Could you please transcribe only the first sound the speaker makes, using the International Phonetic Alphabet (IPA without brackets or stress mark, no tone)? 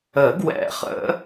ə